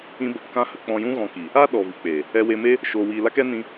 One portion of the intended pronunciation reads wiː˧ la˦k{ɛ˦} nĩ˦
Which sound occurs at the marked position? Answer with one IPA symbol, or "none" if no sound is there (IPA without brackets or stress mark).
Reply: ɛ˦